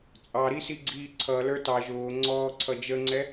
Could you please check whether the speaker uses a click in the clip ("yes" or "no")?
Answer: yes